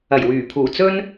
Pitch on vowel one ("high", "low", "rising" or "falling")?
low